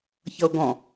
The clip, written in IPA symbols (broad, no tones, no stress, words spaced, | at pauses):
çʌo̯ɡɔ̃